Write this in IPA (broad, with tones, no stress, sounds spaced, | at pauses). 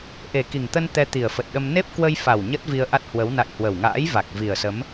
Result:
ʔ e˨˩ k i˨˩ ŋ t̪ ə˧ n t̪ ɛ˧ t̪ i˨˩ ə̯ f ə˨˩ t̚ ɗ ə˧ m n e˦˥ p̚ k w ə˧ j f a˨˩ w ɲ ə˦˥ t̚ v i˧ ə̯ ʔ a˦˥ t̚ h w ə˨˦ w n a̰˧˨ j h w ə˨˩ w ŋ a̰ː˧˥ j v a˨˩ k̚ v i˨˩ ə̯ s ə˨˦ m